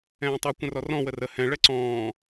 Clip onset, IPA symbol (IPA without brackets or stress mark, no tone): ɛ̃ː